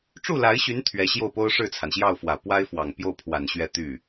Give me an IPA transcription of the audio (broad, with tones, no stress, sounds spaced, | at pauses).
ʈ͡ʂ u˥˩ l a˧˥ ɪ̯ ɕ y˧˥ n t̪ʰ ɥ ɛ˧˥ ɕ j o˥˩ ʊ̯ p o˥ ʊ̯ ʂ ɻ̩˥˩ t͡sʰ a˩ n ɕ j ɑ˥˩ ʊ̯ f w ä˨˩ p w a˥ ɪ̯ f w ɑ˨˩ ŋ p j o˥˩ ʊ̯ pʰ w a˨˩ n ɕ ɥ ɛ˥˧ t̪ y˥˩